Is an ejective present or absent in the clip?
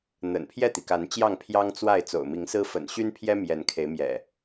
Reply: absent